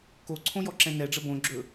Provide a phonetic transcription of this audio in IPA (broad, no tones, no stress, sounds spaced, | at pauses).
k o ǀʰ õ j ɔ ǁ ɛ̃ n ɛ ɖ͡ʐ ə b õ ɡ͡ǁ ɵ